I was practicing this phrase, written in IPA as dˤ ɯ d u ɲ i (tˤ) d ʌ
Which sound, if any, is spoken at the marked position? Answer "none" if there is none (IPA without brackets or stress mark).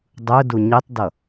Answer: tˤ